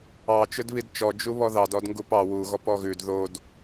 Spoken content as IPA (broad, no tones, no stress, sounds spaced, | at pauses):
ɑ t͡ʃ ɵ d β i d t͡ʃ ɔ d͡ʒ u β ɔ ð ɑ d ɔ d ŋ ɡ u p ɑ w u ɣ ɔ p ɔ ɣ ʉ d ð o d